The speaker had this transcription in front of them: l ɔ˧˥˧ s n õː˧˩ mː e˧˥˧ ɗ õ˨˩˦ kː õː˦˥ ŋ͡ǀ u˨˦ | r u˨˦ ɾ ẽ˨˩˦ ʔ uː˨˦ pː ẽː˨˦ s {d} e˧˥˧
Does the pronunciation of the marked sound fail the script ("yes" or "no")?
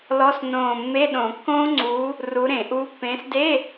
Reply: no